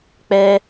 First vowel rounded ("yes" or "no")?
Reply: no